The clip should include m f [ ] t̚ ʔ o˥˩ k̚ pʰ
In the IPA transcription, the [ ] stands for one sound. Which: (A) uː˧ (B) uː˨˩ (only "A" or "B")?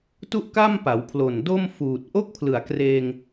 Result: B